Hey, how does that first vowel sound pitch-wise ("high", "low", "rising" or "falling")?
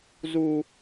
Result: high